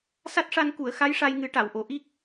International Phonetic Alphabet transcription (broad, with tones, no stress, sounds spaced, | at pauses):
s a˦˥ t̚ ʂ a˧ n k u˨˩˨ ə̯ x a˧˥ j ʂ a˧ j ŋ ɨ˨˩˦ ʈ a˨˩˨ w ʔ o˨˩˨ ʔ i˦˥ k̚